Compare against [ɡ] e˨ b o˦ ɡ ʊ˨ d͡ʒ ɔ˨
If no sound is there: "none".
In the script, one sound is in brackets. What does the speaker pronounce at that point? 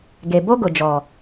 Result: ɡ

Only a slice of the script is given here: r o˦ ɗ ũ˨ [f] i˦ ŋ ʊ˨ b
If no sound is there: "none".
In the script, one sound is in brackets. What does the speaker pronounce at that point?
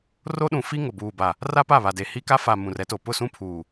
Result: f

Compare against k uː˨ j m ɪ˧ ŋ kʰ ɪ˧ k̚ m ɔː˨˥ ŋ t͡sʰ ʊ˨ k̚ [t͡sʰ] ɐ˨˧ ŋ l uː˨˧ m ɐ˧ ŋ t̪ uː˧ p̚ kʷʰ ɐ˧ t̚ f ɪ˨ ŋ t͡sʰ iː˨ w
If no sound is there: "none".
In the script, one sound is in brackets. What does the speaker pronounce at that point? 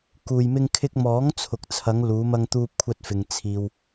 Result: t͡sʰ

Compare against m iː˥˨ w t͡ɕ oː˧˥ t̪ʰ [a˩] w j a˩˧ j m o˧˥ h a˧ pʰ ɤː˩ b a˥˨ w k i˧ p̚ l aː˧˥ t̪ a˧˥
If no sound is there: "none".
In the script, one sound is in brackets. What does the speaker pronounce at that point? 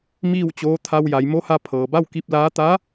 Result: a˧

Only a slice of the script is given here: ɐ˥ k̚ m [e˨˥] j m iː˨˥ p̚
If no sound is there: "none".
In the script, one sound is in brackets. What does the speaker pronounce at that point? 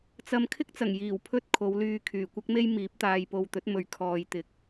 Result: e˥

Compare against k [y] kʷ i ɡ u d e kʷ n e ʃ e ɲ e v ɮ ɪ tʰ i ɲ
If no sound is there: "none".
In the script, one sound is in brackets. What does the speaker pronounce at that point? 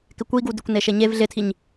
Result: ɪ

